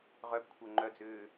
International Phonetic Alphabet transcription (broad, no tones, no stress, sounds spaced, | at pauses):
ʁ œ b kʷʰ œ ŋ͡ǃ œ d͡z ʏː